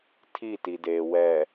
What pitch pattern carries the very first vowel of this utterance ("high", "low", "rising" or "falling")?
falling